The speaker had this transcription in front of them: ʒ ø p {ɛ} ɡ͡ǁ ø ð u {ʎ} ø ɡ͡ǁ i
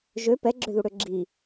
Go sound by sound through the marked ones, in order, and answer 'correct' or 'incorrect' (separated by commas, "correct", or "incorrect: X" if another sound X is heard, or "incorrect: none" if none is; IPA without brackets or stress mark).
correct, incorrect: ɽ